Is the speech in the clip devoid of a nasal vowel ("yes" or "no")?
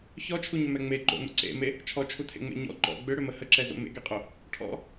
yes